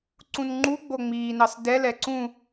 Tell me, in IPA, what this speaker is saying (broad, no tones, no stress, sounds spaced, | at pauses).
ǀ ũ n ŋ͡ǃ u ɡ͡b o ŋ͡m iː n ɑ s d ɛ l ɛ ǀ ũ